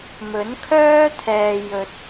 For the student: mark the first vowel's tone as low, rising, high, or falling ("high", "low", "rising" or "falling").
rising